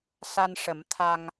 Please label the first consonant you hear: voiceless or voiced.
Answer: voiceless